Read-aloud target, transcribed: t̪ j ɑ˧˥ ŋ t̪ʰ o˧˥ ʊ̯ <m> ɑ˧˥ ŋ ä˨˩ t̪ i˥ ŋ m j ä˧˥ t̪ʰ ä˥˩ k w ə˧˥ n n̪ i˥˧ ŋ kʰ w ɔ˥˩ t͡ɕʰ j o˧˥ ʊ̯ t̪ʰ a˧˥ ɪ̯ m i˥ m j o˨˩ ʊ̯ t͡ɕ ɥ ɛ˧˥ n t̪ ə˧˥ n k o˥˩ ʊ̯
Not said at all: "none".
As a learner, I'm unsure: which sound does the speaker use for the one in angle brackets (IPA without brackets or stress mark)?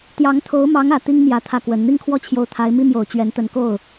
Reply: m